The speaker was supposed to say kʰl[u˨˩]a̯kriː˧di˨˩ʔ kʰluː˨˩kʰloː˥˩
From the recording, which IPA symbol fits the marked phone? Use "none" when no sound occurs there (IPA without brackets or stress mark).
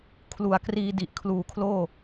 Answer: u˨˩